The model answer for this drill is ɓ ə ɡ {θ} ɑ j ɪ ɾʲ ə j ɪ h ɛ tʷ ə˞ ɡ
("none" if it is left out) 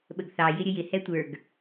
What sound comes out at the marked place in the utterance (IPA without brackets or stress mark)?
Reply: θ